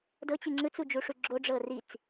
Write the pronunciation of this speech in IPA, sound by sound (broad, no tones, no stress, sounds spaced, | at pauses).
d ɤ t͡ɕ i ŋ͡ǁ ɯ t͡s u d͡ʒ u ʂ u ɡ͡ǁ o ɖ͡ʐ ɤ r i t͡s